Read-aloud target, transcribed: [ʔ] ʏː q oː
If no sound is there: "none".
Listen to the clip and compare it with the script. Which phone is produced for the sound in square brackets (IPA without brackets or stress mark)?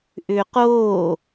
ʔ